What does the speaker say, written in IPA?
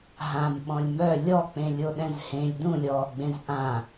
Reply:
ɦ ã m ɓ ɔ̃ lʲ m œ lʲ ɔ k͡p ẽ lʲ o ɗ ɛ̃ z h ẽ lʲ d ũ lʲ ɔː ɡ͡b ẽ z ʔ ã

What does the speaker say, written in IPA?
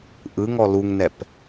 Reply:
ʔ ɯ ŋ ɔ l u ŋ n ɛ p

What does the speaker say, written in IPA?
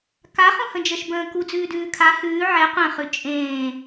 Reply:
k a χ ũ h ə̃ d͡ʒ ə ʃ b ə̃ː k u d͡z ʉː d ʉː kʰ a h ʉː ʕ ɛ qʷ ɛ̃ χ ʉ t͡ʃʼ ẽː

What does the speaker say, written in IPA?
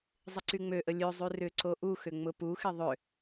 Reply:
zˤ ɪ ǀ y ŋ͡m ø ʔ ə lʲ ø zˤ y r ʏ ǀ o ʔ u x ʏ ŋ͡m ʊ p u x ɪ ðˤ ʏ

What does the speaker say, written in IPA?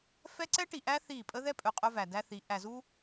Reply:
f ɛ˦ ǀ ɛ˦ ʈ i˨ ʔ æ˦ θ i˦˨ pʼ ə˦ ð ɛ˦ pʼ ɵ˨ qʼ ɵ˦ v æ˨ d æ˦ θ i˨˦ ʔ æ˨ z u˦

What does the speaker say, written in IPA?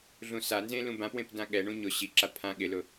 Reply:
ɮ ũ s a n z ẽ l ũ b ã p w ẽ p d ã ɠ ɛ ɳ ũ ɲ ʊ ɕ i ǁ a pʰ ã ɠ ɪ l ʊ

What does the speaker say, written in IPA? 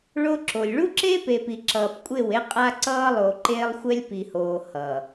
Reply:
ɭ o˦ ǁ o˨ lʲ ɭ u˦ ǁ eː˦ p e˨ p i˨ ǁ ʌː˨ p kʷʼ e˦˨ w e˦ qʼ a˦ ǀ ʌː˦ lˠ o˨ ǃ eː˦ lˠ xʷ ɛ˦ lʲ p i˨ h oː˨ h ʌ˨

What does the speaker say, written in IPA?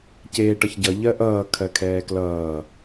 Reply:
c eː ʈ ʌ ç ɟ ʌ ʎ ɜ ʔ ʌː kʰ ɜ kʰ ɛː k l ʌː

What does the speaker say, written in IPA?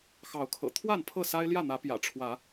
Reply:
x ɑ˨˦ ʊ̯ kʰ ɤ̰˨˩ t̪ʰ w a˥˨ n pʰ ɤ˥˨ s a˦ ɪ̯ l j ä˥˨ n̪ ä˨˦ p j ä̰˨˩ ʈ͡ʂʰ w ä˨˦

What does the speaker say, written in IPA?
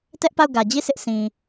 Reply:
t ɛ˦ ʔ p a˦˨ ʊ̯ ɡ ä˨ d͡ʑ i˦˨ s ɪ˦ ʔ sʰ ĩ˨

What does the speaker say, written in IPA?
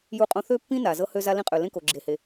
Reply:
j u˥ qʼ õ˥ θ ø˥ pː ĩ˥ n a˩ z ɤ˥ h ø˥ z a˥ l ĩ˥ qʼ ø˩ l ẽ˥ k o˩ ɡ͡ǁ e˩ h e˩

